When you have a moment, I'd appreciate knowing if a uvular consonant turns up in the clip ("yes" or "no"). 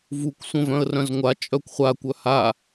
yes